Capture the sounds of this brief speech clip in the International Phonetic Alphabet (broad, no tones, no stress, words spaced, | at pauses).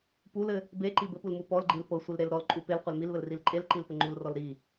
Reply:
pulɘ | beǃi bɘpulmu pɔlɡ͡ǃil pɤsʷilɾel ɾɔlǃʼu pelqʷel milβɘlril ǃʼelǃilpɘ ŋ͡ǃulrɔl ɾi